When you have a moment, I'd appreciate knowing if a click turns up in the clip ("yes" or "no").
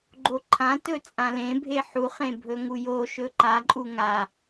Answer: yes